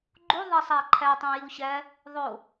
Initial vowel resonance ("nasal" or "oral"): oral